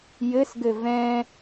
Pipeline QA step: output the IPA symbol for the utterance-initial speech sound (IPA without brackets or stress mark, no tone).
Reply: j